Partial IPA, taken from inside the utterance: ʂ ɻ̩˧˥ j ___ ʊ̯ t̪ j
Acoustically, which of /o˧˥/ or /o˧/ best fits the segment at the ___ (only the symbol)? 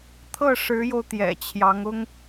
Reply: o˧